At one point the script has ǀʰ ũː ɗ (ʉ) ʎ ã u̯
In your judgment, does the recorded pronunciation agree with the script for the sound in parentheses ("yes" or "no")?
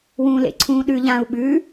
yes